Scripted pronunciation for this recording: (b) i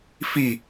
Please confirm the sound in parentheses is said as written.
no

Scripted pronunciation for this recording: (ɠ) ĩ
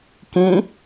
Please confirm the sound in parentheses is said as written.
no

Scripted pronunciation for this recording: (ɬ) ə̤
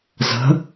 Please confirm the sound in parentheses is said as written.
no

